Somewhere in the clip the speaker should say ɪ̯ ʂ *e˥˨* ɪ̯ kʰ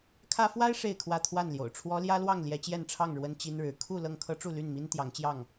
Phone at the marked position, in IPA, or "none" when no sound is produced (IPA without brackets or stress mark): e˥˨